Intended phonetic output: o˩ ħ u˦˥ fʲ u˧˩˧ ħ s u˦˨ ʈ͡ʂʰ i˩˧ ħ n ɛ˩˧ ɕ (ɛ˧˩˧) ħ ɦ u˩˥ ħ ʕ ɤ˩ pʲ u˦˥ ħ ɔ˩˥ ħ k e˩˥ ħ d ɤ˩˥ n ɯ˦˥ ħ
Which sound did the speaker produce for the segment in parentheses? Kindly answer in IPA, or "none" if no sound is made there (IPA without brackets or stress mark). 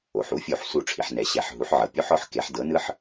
ɛ˧˩˧